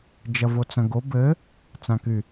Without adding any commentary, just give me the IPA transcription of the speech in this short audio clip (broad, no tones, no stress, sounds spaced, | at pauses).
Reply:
d͡ʒ ɐ v o t͡s ɐ̃ ɡ o b ɘ | t͡s ã k y